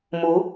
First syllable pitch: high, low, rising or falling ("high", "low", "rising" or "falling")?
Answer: rising